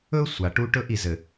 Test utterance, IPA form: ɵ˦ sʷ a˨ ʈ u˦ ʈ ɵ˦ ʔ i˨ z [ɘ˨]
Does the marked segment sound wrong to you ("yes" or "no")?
no